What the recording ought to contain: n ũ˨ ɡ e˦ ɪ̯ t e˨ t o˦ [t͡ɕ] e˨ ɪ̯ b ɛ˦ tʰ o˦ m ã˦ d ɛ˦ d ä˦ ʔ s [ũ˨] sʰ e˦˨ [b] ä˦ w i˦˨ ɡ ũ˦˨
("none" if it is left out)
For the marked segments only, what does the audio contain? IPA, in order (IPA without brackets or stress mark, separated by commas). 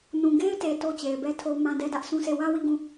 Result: t͡ɕ, ũ˦, w